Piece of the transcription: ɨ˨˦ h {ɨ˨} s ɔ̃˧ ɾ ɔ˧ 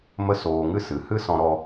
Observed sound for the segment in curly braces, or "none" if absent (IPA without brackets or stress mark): ɨ˦